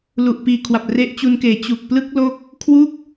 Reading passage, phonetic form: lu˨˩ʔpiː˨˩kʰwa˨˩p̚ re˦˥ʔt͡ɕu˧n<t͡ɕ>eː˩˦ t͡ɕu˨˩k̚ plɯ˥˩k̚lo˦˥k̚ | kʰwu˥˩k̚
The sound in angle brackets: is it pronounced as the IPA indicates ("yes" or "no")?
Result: no